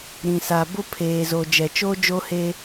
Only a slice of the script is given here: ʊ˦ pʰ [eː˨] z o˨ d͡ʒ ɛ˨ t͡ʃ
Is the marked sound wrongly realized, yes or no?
no